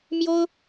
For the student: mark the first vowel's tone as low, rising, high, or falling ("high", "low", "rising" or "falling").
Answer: high